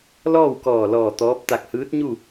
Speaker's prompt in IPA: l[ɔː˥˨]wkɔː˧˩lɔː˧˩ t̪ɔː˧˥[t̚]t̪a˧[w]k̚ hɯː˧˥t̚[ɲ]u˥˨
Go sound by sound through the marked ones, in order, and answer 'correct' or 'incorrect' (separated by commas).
correct, incorrect, incorrect, correct